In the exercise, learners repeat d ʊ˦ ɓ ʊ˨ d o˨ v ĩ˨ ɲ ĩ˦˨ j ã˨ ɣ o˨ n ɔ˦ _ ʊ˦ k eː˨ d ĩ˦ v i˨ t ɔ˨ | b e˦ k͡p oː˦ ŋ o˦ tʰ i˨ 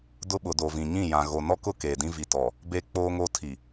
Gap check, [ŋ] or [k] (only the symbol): k